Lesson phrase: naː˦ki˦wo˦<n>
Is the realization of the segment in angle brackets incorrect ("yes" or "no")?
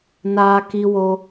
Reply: yes